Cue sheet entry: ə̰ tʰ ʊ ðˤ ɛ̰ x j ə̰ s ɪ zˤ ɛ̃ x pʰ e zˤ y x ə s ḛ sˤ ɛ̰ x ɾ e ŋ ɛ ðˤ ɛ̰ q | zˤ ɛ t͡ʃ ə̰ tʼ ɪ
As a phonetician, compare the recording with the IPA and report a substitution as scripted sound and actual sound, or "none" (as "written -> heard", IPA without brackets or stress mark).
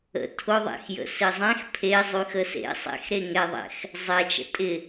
q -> x